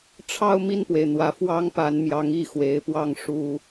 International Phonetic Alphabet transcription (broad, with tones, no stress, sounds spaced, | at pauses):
ʈ͡ʂʰ ɑ˥˧ ʊ̯ m i˥˩ n p w e˩ ɪ̯ n̪ w ä˧˥ f w ɑ˥ ŋ p a˧˥ n m j ɑ˧˥ ŋ i˥˩ x w e˧˥ ɪ̯ p w ɑ˥˩ ŋ ʂ u˥